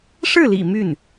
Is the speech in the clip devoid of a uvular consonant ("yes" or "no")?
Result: yes